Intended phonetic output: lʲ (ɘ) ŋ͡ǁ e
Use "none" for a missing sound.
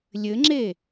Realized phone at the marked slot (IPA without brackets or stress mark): ɘ